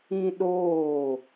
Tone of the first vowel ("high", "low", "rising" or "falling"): high